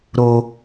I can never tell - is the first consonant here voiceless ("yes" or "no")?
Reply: no